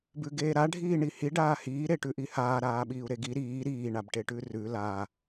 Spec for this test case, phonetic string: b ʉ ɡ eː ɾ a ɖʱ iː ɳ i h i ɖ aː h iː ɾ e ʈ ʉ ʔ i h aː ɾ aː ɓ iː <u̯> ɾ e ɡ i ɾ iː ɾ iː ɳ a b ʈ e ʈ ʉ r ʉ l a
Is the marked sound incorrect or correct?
correct